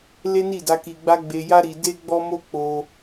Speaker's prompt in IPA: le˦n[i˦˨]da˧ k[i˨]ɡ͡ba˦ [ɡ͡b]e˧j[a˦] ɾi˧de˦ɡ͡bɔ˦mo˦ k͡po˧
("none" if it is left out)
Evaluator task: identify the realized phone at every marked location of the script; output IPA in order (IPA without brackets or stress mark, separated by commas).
i˦˨, i˧, ɡ͡b, a˦